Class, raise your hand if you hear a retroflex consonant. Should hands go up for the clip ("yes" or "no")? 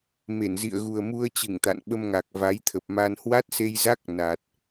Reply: no